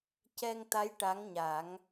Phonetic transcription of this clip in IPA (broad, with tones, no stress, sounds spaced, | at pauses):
c ɛ˧ ŋ t̪ a˧˥ j ʈ a˧˥ ŋ ɲ a˨˩˦ ŋ